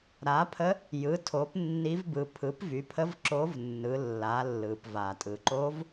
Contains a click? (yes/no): yes